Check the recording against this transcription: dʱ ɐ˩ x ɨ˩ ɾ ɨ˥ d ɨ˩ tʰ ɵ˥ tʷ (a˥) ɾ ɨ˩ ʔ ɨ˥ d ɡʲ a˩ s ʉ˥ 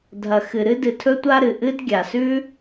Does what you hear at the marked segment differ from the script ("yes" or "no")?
no